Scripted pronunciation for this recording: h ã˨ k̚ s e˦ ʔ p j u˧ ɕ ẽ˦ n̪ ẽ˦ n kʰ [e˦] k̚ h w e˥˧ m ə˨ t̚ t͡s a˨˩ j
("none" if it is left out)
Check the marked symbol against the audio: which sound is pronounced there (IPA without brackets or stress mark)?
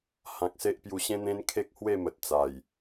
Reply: e˦